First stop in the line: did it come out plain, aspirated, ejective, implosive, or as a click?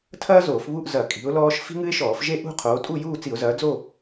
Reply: aspirated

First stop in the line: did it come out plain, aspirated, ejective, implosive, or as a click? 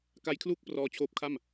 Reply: plain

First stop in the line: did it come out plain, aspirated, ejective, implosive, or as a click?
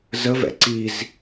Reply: click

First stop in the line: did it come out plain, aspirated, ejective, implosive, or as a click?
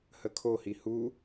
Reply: aspirated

